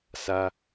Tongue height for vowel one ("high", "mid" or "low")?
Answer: low